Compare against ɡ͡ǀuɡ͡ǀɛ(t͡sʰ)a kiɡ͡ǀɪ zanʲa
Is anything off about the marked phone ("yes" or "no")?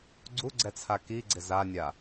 no